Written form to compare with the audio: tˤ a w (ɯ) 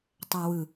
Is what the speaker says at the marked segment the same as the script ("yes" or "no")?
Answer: yes